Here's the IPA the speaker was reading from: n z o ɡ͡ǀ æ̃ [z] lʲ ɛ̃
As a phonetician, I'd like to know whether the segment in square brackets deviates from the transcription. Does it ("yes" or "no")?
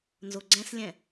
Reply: yes